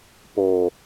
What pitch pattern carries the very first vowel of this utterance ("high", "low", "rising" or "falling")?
low